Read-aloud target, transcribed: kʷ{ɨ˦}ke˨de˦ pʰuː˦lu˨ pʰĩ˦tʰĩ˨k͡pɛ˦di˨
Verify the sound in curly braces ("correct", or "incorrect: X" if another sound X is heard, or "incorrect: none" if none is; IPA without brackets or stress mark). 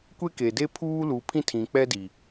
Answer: incorrect: e˦